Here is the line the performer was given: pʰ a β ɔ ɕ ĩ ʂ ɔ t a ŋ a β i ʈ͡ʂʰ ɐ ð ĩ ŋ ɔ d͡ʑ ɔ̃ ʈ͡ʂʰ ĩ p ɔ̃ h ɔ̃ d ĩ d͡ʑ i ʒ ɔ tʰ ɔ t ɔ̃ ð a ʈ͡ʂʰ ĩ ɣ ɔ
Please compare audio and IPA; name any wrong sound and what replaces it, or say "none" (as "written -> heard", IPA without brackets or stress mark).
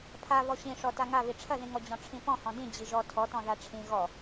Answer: none